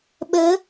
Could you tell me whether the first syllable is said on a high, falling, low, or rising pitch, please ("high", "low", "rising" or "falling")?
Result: rising